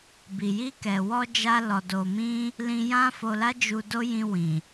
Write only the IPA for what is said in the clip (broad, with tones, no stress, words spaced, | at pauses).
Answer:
bi˨ji˧kɛ˨wɔ˧ d͡ʒa˧lɔ˨do˨mĩ˧ | lĩ˧jã˦ fo˧la˦d͡ʒu˧ do˦jĩ˧wĩ˨